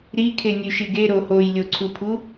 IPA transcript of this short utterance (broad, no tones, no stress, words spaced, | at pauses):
ɾikʰenʲʉʃiɡ eɾo hojlʲoǀʰupʰu